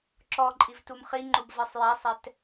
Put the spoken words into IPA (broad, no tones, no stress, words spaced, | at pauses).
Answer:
ǁɔǃʼiv tumχiŋ͡ǃub vɛsˤjasˤɛt